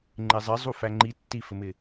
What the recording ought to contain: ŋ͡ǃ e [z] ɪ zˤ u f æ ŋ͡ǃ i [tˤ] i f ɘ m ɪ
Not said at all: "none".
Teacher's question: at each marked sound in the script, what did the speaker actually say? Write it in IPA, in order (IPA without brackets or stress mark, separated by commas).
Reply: zˤ, tː